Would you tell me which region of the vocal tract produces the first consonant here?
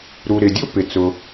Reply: tongue tip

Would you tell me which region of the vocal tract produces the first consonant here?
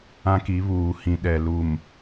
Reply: velum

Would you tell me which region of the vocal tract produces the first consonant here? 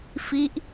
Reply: lips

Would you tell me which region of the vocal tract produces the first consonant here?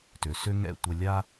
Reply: tongue tip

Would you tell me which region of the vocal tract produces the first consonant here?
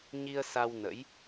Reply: palate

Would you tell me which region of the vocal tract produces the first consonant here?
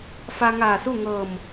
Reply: lips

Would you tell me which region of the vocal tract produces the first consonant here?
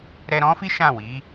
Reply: tongue tip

